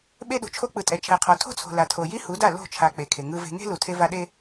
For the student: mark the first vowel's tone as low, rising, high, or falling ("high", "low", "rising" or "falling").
high